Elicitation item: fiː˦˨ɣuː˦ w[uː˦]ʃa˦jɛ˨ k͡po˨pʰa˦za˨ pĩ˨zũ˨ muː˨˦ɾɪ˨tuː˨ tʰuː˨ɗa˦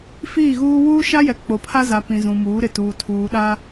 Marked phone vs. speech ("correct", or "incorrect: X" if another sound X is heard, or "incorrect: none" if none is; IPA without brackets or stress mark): correct